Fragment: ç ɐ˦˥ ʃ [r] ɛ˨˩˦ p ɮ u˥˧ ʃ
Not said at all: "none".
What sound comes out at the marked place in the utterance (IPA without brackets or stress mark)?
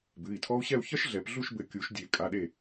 ɮ